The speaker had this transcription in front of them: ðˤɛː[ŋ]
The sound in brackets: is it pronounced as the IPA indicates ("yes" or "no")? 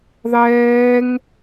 yes